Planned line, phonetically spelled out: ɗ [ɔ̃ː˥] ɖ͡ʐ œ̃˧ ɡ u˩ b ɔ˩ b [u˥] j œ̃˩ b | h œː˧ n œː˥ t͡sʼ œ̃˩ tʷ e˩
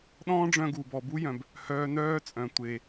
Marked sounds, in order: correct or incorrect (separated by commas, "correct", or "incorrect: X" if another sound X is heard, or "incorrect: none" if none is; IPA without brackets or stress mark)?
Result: correct, correct